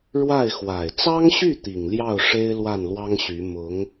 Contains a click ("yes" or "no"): no